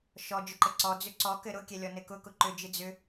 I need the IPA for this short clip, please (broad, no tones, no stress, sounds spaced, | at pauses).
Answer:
ʃ ɔ d͡ʒ ʏ ǃ ɘ ǀ ɔ d͡z ʏ ǀ ɔ k ɘ ɾ ʊ kʲ ɛ lʲ ɔ n ɘ k ʊ k ʊ ǃ ʏ d͡ʒ ɨ d͡z ʏ